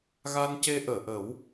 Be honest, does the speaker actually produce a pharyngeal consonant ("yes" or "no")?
no